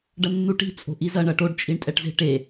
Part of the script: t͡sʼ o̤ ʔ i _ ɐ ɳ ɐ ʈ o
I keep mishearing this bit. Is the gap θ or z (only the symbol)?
z